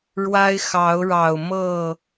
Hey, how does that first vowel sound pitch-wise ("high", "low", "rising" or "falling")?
high